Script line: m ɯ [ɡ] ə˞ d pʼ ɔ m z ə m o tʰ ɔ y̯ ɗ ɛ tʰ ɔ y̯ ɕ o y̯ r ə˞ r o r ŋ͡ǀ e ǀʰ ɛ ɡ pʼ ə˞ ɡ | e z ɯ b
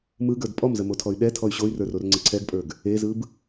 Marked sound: correct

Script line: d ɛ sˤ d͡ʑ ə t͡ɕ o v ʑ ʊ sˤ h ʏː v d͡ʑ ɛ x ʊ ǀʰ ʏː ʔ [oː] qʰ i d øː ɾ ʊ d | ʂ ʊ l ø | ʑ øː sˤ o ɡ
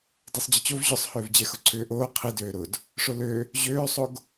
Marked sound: correct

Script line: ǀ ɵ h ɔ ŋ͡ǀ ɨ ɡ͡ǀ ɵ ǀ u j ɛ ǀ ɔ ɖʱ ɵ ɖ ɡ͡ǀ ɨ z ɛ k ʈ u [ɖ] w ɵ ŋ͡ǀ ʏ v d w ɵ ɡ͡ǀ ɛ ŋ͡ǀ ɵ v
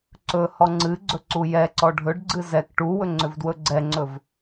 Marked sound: incorrect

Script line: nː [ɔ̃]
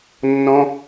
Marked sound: correct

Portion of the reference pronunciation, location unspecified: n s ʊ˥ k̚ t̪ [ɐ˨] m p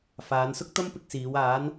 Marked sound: incorrect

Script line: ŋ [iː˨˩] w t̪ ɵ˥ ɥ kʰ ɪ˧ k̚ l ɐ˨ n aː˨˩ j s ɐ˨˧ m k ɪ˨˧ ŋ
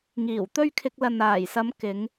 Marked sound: correct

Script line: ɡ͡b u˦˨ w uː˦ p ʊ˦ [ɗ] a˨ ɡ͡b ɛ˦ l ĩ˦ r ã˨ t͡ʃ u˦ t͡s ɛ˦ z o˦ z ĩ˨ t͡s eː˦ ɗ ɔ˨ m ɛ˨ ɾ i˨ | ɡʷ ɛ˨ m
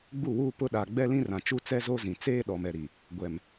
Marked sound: correct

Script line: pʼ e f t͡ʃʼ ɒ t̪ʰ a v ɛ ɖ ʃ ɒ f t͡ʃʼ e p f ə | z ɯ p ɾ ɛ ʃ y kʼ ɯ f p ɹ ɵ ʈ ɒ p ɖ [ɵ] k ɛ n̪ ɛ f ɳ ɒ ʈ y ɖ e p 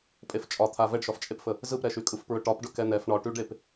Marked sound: correct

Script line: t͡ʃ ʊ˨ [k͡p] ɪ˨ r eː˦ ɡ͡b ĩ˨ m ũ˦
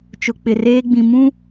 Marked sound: correct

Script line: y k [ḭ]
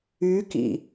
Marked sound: correct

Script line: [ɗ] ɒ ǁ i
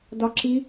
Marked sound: incorrect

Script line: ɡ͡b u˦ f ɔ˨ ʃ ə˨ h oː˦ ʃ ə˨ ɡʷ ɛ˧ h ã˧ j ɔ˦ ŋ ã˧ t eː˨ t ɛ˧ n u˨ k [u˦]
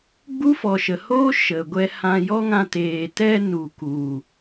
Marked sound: incorrect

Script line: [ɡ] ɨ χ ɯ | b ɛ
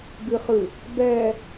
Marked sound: correct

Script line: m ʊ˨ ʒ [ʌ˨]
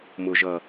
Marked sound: correct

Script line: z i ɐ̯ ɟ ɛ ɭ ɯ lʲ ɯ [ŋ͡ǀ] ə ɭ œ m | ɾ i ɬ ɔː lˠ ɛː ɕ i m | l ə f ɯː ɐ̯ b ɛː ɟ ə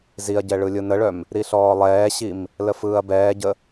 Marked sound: incorrect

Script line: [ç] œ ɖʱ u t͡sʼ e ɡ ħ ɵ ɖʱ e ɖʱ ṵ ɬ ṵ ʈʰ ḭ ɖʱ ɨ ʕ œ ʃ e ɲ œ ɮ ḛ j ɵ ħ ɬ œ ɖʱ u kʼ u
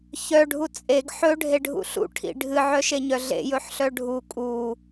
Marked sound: correct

